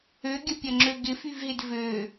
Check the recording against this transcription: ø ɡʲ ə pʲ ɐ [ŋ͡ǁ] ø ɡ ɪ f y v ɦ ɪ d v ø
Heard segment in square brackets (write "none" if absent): ŋ͡ǁ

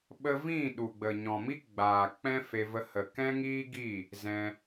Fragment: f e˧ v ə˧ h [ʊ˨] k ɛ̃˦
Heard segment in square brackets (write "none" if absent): ə˨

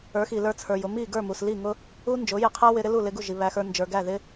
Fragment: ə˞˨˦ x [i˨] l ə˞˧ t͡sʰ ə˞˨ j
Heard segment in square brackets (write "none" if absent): i˨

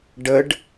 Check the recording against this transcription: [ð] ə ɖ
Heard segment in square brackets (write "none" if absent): ɖ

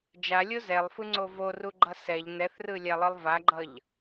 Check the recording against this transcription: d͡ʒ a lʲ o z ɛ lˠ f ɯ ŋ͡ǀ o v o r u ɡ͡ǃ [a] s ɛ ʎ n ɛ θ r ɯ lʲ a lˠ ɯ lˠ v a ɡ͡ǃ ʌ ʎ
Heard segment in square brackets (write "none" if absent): ʌ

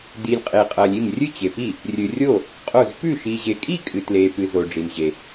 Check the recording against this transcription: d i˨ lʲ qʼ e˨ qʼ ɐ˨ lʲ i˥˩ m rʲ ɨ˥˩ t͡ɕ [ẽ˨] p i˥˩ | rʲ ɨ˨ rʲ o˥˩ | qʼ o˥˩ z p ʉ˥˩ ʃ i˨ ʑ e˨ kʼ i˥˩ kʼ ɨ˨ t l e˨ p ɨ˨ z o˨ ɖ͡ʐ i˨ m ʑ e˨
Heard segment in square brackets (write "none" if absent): e˨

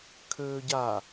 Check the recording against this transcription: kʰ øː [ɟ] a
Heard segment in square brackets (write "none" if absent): ɟ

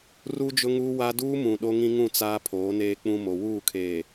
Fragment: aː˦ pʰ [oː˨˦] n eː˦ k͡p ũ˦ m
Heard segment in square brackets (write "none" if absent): oː˨˦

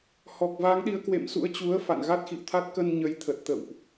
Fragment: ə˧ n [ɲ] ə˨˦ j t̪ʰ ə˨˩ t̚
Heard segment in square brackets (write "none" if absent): ɲ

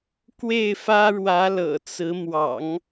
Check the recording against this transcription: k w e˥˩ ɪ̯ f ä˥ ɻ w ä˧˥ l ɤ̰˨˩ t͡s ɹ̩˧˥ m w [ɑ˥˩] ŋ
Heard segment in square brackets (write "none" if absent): ɑ̰˨˩˦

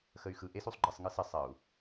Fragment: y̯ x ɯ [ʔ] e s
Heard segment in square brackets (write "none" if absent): ʔ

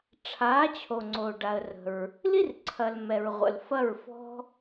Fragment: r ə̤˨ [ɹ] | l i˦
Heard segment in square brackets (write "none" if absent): ɹ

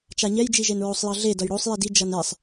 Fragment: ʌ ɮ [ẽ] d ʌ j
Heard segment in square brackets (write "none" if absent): e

